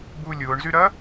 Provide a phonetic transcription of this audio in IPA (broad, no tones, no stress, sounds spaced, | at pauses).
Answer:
b u lʲ ʊː ɳ z y ɾ ɐ